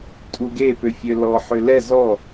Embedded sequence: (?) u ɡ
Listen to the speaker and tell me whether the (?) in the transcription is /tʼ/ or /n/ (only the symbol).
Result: tʼ